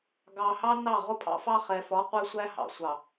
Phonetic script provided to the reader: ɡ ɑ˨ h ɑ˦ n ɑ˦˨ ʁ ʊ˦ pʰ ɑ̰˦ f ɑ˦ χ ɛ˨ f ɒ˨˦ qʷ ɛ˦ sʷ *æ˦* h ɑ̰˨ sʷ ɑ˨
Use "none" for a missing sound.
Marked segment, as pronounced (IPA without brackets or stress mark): æ˦